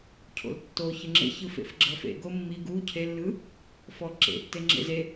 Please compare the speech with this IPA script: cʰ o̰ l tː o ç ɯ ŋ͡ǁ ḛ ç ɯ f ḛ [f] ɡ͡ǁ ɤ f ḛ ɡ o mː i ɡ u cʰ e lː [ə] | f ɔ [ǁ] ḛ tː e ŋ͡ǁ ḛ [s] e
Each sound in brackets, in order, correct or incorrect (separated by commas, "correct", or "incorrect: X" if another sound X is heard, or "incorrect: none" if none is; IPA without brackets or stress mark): correct, incorrect: ɯ, correct, incorrect: z